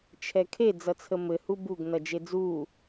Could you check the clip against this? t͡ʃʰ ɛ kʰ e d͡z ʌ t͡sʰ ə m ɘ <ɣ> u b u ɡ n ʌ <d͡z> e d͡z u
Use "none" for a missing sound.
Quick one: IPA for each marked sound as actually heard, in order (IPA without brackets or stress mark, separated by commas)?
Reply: h, d͡ʒ